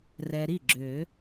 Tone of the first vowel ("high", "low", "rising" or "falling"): low